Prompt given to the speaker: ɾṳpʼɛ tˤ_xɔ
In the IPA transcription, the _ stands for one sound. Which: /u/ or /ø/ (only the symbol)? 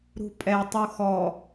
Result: u